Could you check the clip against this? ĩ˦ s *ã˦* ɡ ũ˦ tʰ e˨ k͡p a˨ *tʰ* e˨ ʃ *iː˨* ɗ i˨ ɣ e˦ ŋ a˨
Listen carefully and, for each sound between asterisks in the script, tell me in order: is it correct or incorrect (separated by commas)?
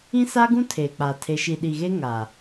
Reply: incorrect, correct, incorrect